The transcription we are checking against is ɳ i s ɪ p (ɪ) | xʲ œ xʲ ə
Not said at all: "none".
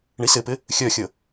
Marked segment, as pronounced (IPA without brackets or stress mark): ɪ